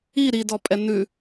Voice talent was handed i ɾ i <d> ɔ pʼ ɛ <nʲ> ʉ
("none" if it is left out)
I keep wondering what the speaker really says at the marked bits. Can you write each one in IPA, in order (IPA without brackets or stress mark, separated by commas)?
d, n